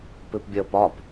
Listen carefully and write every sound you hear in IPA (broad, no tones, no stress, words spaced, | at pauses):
pɨpbʲəːpɒp